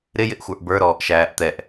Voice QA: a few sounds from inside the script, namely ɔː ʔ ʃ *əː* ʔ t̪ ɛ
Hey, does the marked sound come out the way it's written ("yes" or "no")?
no